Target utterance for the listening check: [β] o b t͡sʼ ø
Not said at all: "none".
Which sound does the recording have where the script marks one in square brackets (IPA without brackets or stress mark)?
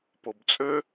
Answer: p